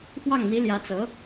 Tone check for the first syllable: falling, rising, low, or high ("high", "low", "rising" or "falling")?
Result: falling